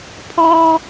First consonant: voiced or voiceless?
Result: voiceless